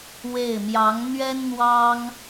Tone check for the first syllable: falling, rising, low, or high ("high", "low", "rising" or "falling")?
falling